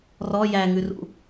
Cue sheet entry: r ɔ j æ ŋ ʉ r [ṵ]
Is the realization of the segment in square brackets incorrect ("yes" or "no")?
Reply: no